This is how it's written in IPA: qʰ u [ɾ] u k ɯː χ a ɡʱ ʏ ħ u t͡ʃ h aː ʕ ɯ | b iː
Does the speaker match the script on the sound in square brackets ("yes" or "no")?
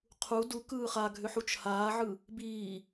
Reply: no